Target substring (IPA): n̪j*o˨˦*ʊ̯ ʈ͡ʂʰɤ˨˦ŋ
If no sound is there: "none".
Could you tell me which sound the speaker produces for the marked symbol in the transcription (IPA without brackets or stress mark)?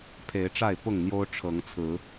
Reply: o˦